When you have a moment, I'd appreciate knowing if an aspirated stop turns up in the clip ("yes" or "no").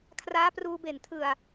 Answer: yes